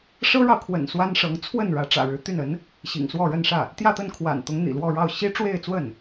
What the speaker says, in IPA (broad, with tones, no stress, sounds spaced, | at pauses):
ʂ ɤ˥ ɻ ɑ˨ ʊ̯ kʰ w ə̰˨˩ n s w a˥ n ʂ ɤ˧˥ ŋ t͡sʰ w ə˥˩ n ɻ ä˧˥ ʈ͡ʂ ä̰˨˩ ɻ ɻ̩˧˥ t̪ y˥˩ n ə˧˥ n | ɕ ḭ˨˩ ŋ s w ɔ˥˧ ɻ ə˥˧ n ʂ ä˥˩ | t̪ j ä˥˧ t̪ ə˥˩ n kʰ w a̰˨˩ n t̪ ʊ˧˥ ŋ n̪ ḭ˨˩ l w ɔ˥˧ ɻ ɑ˥˩ ʊ̯ ɕ i˥ ʈ͡ʂ w e˥˧ ɪ̯ t͡s w ə˥˩ n